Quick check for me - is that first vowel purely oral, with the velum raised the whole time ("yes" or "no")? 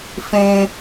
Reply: no